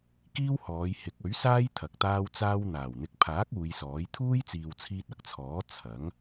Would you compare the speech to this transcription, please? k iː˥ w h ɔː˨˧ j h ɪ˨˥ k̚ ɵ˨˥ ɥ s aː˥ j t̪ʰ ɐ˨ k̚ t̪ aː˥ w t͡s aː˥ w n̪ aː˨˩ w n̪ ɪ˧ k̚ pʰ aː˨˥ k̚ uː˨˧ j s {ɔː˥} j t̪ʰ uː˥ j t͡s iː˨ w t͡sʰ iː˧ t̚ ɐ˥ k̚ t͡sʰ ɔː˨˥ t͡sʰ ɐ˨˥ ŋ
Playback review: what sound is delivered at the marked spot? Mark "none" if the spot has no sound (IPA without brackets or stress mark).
ɔː˨˥